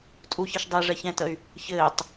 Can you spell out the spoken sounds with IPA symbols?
tʼ u ç i ʃ dˤ e ʐ ɛ ç ɛ̃ t ə y̯ | ç ɘː tˤ

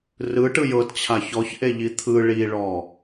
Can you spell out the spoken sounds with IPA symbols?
r ɯ ʈ ɯ j ɤ t t͡ɕʰ a ç ɔ ç ʔ e ʎ i t̪ʰ ɯ ɭ i ɭ ɔ

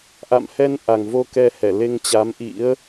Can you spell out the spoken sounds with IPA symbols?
ʔ a̰˧˨ m h ɛ˧ n ʔ a˨˩ ŋ v o˧ k ɛ˧ h ɛ˧˩ l e˧ ŋ t͡ɕ a˨˦ m ʔ ḭ˧˥ ə̯

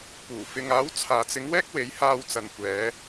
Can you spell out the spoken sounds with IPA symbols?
p uː˨˩ f ɪ˨ ŋ aː˨˥ w t͡sʰ aː˨ t͡s ɪ˨˥ ŋ w ɛː˥ k̚ w e˨˥ j h aː˧ w t͡s ɐ˨ n kʷ ɛː˨˧

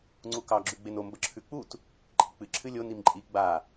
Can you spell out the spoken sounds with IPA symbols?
ŋ͡ǀ u k ɑ ɡ͡ǁ ʉ ɡ͡b e n o m b ə ǁʰ ʉ k͡p u t | ǃʼ i k͡p ɨ ǁʰ ɨ lʲ o n i m ǃʼ i ɡ͡b a

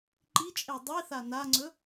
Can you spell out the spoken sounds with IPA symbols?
ǃ i t͡ʃʼ e dˤ i θ a n a ŋ͡ǀ ɵ

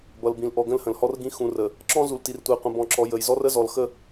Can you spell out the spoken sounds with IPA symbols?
b ʌ˨ l b ĩ˨ l ʔ ɔ˨ ɡ ə̃˦ l h ə̃˨ l h ɔ˦ r ɡ ĩ˦ x ũ˨ r ə˨ | ǁ ɔ̃˦ z u˨ l t i˨ r tʷ ə˨ j qʷ ə̃˨ b ɔ̃˨ ǁ ɔ˨ j ə˨ j z ɔ˦ r ə˦ z ɔ˨ l x ə˦

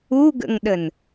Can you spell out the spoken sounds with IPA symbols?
u ɡ ə̰ ŋ ɗ ə n

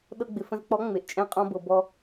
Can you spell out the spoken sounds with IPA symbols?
ɗ ɤ˧ ɡ͡b ɪ˨ f ə̃˧ z k͡p ɔ˨˦ ŋ͡m e˨ ʔ t͡ʃʼ ɛ̃˦ qʼ ɔ̃˧ b ɤ˨ b ɔ˧

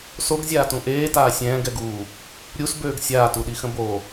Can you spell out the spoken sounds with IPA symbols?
s o ɡ zʲ aː t ũ ʔ eː t aː sʲ ɛ̃ː ɡ ɛ ɡ u | ɾʲ u s b øː ɡ sʲ aː t u ɗ i x ə̃ b o

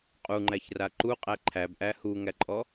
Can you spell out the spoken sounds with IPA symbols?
qʼ u ŋ͡ǃ æ ç r a ǃ u qʼ æ ǃʰ æ b ʔ æ h u ŋ æ ǃʼ ɔ

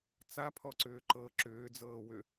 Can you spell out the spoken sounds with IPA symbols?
t͡s a pʰ ɔ ǀ ʏː ǃ ɤ ǁ ʏː d͡z ɤː w ʏ

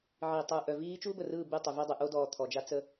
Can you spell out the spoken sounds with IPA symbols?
ʕ i˨ tˤ uː˨ ʔ œ˨ v iː˦ t͡ʃ uː˦ b ə˨ r ɯː˦˨ b y˦˨ tˤ y˨ v y˦ dˤ ɨ˨ ʔ o˦ d ɔː˨ t̪ʰ ɔ˨ d͡ʒ a˦ t͡s ə˦

